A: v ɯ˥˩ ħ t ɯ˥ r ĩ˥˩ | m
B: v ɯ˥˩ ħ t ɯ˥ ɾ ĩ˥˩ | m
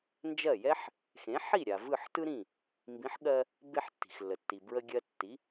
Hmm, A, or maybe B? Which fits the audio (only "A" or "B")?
B